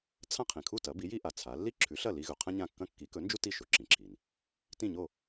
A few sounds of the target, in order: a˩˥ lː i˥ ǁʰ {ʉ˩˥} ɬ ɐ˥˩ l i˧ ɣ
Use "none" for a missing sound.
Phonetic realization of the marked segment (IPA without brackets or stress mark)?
ʉ˩˥